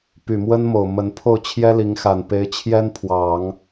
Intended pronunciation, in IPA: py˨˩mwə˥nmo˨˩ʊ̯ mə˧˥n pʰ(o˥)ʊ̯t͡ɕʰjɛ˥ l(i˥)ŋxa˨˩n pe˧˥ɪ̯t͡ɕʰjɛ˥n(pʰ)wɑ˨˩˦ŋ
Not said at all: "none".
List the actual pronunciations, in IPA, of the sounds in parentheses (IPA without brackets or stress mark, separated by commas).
o˥˩, i˧˥, pʰ